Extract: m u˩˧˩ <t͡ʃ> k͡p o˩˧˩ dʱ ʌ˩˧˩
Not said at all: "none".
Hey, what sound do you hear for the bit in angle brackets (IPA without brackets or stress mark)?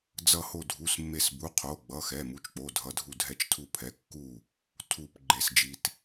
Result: t͡ʃ